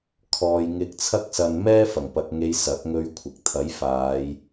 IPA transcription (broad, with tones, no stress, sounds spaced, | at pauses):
kʰ ɔː˧ j ŋ ɪ˧ k̚ t͡sʰ ɐ˥ k̚ s ɐ˧ n m ɛː˥ f ɐ˨˩ ŋ p ɐ˨ k̚ ŋ e˨˧ j s ɐ˨˥ k̚ ŋ ɵ˧ ɥ kʷʰ ɪ˨ k̚ t̪ʰ ɐ˨˥ j f aː˨˧ j